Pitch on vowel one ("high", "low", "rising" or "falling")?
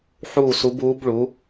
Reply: falling